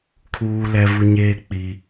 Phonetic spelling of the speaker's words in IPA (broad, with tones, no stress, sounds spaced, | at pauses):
kʰ uː˦ l ɛ˦ v u˦ ɲ eː˦ k͡p i˦